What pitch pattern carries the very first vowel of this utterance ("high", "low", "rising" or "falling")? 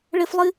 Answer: high